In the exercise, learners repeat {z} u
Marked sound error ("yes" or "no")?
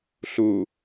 yes